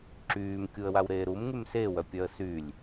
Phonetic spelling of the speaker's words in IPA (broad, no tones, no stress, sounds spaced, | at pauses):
ǁ yː m kʲ u ə̯ w a w ɾ eː ɾ u m ŋ y m s e w œ pʲ œ ə̯ s y lʲ